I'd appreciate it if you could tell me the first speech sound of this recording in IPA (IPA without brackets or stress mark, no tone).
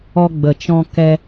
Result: ɔ